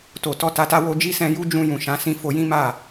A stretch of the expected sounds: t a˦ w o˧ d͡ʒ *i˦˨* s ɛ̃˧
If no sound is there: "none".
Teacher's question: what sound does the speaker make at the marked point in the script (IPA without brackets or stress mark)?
i˦